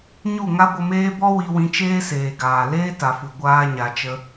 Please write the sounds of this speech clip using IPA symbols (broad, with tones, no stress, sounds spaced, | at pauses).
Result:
ɲ u˦˨ ŋ a˦ ɡʷ ə˧ m eː˦ b ɔ˦ w i˧ w ĩ˧ t͡ʃ eː˦ s eː˨ ɡ aː˨ l eː˦ t a˨ f u˨ ɡʷ aː˧ ɲ a˨ t͡ʃ ə˧